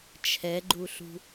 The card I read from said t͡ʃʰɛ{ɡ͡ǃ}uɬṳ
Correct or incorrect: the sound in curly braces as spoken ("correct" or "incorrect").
correct